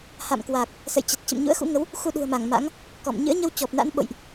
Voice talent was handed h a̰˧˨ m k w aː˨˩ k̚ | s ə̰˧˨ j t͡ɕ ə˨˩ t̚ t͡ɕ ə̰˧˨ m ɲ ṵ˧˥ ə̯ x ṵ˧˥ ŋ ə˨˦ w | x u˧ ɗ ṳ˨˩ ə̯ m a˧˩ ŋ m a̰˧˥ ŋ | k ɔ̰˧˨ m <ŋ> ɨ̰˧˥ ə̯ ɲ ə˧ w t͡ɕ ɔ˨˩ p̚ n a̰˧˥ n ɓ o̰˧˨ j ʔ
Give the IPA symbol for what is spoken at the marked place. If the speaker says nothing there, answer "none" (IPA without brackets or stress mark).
ɲ